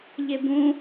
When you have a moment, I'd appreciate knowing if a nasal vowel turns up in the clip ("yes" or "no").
yes